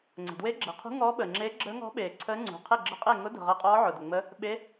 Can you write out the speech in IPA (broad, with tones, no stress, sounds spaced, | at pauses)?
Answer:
ŋ͡ǀ ə̤˩ d w e˧˥ ɡ͡ǁ e˩ qʰ ṳ˧˥ ŋ ɔː˧˥ ɓ əː˩ ŋ͡ǁ eː˧˥ ɡ͡ǁ əː˧˥ ŋ ɔ̤˧˥ ɓ eː˩ ǀʰ əː˧˥ ŋ͡ǀ ṳ˩ qʰ e˥˩ ɡ͡ǁ ə˧˥ qʼ e˥˩ ŋ ʊ˧˥ d ə̤˩ ʁ əː˧˥ qʼ ɔː˧˥ ʕ ʊ˩ d ə˩ ŋ͡m ə˧˥ | ɓ e˧˥